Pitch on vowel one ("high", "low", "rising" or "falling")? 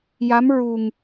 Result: rising